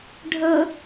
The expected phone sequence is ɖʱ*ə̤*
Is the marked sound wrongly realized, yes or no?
yes